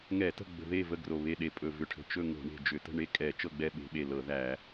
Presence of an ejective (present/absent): present